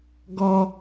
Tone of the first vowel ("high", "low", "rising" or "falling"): high